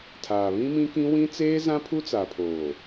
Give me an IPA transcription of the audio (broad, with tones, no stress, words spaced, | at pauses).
tʰaː˨βĩ˦mĩ˦kĩ˦ wĩ˦t͡seː˦zã˦ pʰu˦t͡sa˨pʰoː˨